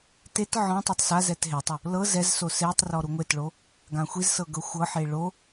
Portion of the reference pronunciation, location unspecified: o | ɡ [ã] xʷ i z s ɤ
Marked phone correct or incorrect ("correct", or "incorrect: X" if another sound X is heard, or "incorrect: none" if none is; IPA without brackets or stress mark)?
correct